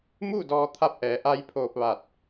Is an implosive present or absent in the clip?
absent